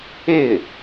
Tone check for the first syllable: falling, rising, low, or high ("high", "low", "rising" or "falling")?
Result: falling